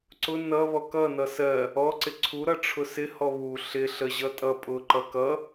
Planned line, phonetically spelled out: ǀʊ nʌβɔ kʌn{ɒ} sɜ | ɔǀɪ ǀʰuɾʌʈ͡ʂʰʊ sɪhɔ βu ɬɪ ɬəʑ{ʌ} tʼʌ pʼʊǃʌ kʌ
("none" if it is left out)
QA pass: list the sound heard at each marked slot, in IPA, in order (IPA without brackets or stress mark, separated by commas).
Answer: ʌ, ʌ